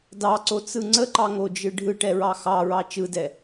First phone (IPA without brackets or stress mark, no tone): d